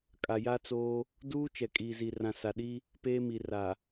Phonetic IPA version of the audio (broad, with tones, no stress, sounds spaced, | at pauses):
kʼ a˨ j a˦ t͡s oː˦ | d uː˦ t͡ʃ ɛ˨ kʼ iː˨ z i˨ r ã˨ s a˨ ɗ i˦ | p eː˦ m i˨ r a˨